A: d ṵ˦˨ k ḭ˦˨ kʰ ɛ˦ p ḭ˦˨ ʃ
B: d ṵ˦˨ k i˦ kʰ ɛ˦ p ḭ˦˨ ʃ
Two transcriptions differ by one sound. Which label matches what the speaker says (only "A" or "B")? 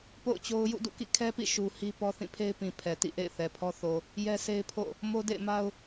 A